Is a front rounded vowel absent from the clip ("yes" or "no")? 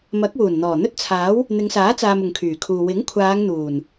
no